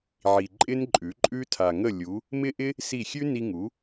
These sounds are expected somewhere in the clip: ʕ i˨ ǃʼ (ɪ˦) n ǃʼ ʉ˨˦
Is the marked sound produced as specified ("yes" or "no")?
yes